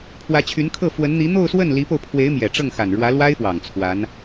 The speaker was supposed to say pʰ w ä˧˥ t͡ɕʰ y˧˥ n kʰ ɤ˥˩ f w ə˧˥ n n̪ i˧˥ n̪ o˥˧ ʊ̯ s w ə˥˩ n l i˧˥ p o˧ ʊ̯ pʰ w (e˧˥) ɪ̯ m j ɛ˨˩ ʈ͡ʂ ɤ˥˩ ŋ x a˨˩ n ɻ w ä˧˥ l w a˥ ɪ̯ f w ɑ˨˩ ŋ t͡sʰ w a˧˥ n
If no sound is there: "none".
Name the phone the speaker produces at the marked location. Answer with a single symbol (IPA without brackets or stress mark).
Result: e˧˥